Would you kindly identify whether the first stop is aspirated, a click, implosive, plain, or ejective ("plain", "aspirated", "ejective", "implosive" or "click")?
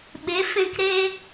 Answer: implosive